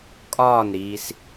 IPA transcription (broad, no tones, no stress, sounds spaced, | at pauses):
kʼ ɒː n ɾ iː s